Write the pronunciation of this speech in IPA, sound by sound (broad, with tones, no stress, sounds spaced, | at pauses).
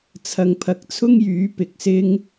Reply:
t͡sʰ ɐ˨ ŋ pʰ ɐ˨˥ k̚ t͡sʰ ʊ˥ ŋ j yː˨˥ p ɪ˨ k̚ s ɪ˥ ŋ